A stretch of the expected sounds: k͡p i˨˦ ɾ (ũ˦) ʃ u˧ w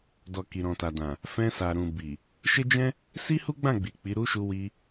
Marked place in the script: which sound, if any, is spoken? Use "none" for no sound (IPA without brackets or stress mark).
u˦